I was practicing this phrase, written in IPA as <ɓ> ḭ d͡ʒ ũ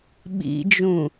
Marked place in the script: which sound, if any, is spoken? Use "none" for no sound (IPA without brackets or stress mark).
ɓ